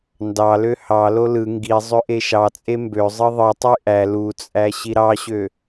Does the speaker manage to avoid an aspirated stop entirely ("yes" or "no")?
yes